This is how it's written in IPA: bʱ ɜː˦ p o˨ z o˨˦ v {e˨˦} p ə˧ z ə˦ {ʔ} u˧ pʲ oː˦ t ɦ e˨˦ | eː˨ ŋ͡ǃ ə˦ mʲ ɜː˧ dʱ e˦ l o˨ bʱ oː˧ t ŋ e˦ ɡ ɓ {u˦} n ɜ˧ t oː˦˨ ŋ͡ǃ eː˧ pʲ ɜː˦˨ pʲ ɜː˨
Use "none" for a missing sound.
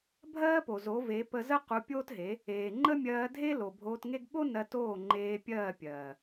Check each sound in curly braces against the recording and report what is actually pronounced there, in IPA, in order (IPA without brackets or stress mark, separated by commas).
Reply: e˨˦, q, o˦